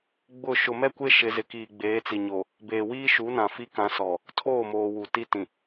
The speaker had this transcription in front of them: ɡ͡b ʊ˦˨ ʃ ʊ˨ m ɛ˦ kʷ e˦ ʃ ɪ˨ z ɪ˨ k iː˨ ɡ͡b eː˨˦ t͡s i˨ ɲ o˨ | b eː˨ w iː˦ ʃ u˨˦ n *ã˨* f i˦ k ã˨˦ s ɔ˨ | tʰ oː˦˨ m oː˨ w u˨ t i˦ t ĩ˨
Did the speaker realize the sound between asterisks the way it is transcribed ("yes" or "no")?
yes